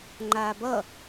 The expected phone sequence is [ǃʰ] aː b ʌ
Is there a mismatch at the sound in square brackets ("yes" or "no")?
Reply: yes